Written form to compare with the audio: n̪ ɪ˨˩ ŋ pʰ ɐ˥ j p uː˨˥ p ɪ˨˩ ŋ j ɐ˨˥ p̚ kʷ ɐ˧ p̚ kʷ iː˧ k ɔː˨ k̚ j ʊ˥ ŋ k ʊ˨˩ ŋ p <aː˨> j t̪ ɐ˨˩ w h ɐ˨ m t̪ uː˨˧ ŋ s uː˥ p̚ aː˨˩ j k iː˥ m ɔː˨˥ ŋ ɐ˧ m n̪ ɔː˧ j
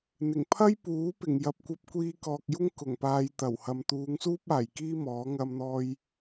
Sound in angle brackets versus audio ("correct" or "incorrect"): correct